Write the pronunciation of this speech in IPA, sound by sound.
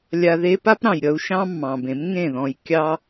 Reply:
lʲ a˧ ð e˥ p a˥ p ɾ ɑ̃˩ j ɾʲ ʌ˧ u̯ ʃ ɑ̃˥ mː ɑ̃˩ b ẽ˩˥ m ŋ ẽ˥˩ ð ɔ̃˧ j kʲ ɑ˥

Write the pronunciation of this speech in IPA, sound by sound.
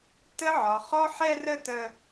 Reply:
t ə˥ ʕ ɒ˧ χ ɔ˥ ħ ɛ˥ r ə˥ t ə˥

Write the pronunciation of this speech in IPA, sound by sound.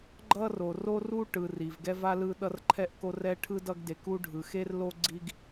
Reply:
ɡ͡ǃ ʌ˥ r o˨ r o˥ r u˥ ʈ ɯ˨ r i˩ v ɡ ɛ˦ v a˥ l ɯ˦ ɗ ʌ˦ r ǃʰ ɛ˦ ʔ k o˦ r ɛ˦ ʈʰ ɯ˥ d ʌ˦ ɡ d e˨ k u˦ ɖʱ ɯ˩ x e˥ r l o˥ ɡ͡ǀ i˦ ɡ

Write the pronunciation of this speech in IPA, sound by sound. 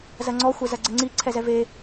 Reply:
z ɐ ŋ͡ǀ ɔ xʷ ɛ z ɐ ɡ͡ǀ ɘ ŋ͡ǀ i ǀʰ ɛ z ɛ v e

